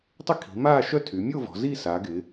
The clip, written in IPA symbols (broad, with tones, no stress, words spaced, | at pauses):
tˤɪ˥˧ kʰi̤˩˧maː˥˧ʃœ˥˧ tʰy˩˧mʲo˥˧vɔ̤˩˧ zi˥˧sa˩˧ɡɪ˩˧